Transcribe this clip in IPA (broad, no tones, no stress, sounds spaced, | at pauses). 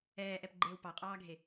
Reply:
ɛː ʔ ɛ p ɡ͡ǃ eː w p ɑ qʼ ɑː ɡʱ e